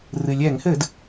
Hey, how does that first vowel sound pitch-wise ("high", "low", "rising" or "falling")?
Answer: low